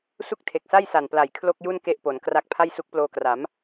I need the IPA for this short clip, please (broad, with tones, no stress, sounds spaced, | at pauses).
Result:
s u˥˩ k̚ tʰ e˨˩ k̚ s a˥˩ j s a˨˩ n p l a˨˩ j kʰ l o˥˩ k̚ j u˥˩ n k e˥˩ ʔ p o˩˦ n k r a˦˥ k̚ pʰ a˥˩ j s u˦˥ k̚ p l oː˧ k r a˩˦ m